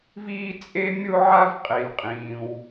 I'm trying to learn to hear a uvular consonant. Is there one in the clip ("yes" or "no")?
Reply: yes